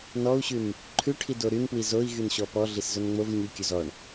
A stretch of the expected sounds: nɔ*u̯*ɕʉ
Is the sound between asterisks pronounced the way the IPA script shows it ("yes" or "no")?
yes